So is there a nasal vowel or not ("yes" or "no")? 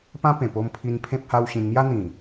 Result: yes